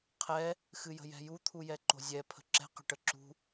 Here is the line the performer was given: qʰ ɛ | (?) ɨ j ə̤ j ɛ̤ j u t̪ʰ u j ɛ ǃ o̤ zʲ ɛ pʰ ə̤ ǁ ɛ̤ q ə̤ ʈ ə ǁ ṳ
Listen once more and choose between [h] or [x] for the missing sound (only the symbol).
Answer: x